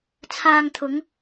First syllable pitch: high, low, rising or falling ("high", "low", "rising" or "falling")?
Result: low